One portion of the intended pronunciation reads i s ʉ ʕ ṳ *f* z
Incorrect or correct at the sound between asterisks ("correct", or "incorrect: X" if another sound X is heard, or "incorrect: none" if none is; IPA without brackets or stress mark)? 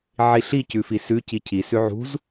incorrect: none